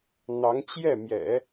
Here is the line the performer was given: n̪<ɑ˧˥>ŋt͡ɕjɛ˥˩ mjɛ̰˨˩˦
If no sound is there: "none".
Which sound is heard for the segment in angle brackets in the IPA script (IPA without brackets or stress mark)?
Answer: ɑ˧˥